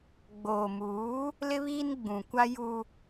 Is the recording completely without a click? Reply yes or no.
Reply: yes